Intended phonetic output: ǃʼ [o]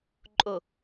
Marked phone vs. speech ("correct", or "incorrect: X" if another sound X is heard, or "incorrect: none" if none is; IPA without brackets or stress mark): correct